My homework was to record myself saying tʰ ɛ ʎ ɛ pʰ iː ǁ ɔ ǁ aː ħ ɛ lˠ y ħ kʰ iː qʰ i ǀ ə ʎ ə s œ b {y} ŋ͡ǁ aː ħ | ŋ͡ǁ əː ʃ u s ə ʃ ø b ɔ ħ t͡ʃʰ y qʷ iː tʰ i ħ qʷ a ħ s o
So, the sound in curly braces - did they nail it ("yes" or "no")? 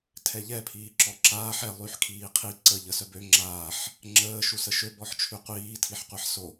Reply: no